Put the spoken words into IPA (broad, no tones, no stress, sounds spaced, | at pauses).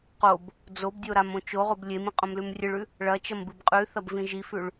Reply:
q o b | d͡z o b dʲ o ɾ a m õ t͡ʃ o ʁ o b lʲ e m ĩ qʼ õ m l ʉ m rʲ ɨ ɭ ʉ | ɭ ɐ t͡ʃ ɐ m b ɨ b qʼ ʉ θ ɐ b v ĩ ʒ i f ʉ ɭ